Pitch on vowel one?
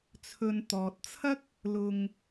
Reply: low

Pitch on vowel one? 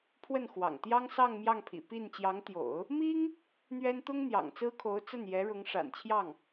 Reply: falling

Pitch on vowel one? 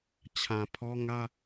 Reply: low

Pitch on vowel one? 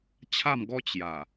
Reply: falling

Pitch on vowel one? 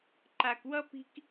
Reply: low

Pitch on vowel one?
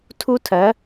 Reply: high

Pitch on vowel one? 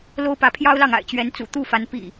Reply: high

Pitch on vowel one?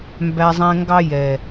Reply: low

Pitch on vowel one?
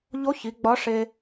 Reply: rising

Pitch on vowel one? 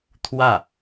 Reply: falling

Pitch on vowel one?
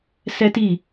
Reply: high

